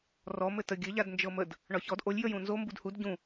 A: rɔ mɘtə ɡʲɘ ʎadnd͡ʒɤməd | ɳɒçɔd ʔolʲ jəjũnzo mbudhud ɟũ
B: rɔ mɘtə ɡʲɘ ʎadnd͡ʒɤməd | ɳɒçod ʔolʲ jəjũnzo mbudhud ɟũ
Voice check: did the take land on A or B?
A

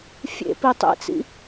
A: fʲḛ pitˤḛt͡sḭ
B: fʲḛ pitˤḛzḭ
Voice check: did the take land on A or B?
A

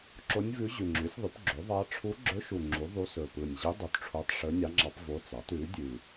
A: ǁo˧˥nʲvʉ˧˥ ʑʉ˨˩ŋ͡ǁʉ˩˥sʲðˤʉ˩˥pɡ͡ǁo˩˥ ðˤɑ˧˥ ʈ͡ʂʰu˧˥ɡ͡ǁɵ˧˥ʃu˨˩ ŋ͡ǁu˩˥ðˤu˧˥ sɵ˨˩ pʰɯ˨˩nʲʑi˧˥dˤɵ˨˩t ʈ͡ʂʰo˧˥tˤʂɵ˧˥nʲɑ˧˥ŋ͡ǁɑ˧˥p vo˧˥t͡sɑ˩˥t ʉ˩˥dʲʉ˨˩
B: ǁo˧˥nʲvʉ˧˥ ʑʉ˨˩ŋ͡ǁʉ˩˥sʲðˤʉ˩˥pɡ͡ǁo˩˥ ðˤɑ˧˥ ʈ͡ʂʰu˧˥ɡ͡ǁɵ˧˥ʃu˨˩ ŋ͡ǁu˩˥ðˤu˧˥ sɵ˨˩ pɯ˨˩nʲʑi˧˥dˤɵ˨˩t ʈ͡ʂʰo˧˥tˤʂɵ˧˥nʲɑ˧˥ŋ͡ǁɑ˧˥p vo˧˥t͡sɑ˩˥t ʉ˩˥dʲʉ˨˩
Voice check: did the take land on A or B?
B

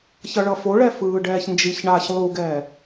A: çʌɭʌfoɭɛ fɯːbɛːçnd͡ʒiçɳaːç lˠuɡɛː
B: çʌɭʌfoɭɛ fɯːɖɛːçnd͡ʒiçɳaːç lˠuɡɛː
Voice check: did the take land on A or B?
B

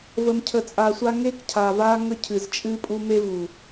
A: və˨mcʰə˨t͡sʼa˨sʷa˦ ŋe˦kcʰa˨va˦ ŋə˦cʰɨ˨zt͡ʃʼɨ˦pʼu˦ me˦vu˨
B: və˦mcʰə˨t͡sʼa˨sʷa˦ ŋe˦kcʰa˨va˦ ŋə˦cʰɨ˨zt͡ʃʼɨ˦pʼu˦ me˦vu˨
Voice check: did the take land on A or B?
A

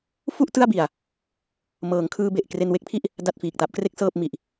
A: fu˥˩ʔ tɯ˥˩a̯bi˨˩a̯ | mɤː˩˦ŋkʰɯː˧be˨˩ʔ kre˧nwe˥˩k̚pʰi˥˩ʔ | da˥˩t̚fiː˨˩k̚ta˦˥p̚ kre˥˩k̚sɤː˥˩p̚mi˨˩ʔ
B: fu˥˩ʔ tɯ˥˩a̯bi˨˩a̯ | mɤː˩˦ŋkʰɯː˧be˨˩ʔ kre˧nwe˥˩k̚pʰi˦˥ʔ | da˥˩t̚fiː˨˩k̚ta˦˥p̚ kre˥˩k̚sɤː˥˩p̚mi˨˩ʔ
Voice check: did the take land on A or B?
A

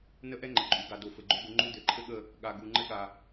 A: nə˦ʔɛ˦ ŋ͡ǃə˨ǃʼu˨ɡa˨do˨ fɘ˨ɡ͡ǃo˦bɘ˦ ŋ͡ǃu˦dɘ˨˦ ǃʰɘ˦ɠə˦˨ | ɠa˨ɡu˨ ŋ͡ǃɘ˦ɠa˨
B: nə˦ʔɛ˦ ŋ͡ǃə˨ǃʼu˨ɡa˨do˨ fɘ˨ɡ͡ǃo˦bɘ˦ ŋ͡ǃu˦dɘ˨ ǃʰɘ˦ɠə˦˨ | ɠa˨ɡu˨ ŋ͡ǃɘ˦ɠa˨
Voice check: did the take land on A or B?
A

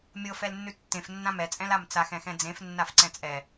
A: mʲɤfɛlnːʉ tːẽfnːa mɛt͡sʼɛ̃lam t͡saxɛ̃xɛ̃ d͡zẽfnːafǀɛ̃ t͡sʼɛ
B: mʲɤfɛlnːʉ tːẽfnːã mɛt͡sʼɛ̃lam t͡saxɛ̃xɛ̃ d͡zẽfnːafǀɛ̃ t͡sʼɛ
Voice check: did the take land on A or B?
B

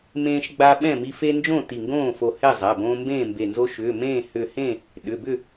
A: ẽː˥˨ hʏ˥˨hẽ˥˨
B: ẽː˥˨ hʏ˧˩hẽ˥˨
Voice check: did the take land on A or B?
B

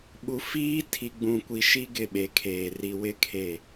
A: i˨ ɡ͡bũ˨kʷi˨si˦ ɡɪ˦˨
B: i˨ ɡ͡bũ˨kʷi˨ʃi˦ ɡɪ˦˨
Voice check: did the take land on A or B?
B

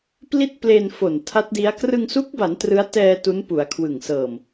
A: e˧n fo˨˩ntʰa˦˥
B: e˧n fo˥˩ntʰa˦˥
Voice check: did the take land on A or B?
A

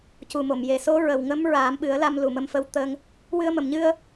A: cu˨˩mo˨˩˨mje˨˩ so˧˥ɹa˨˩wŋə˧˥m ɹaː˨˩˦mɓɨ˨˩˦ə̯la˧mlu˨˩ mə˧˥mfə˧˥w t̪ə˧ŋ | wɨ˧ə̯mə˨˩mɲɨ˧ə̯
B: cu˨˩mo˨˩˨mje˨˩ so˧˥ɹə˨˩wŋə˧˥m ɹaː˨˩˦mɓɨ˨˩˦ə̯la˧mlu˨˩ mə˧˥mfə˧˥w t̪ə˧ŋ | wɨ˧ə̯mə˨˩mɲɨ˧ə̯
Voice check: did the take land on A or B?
B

